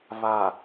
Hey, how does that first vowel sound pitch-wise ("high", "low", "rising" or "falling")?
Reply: low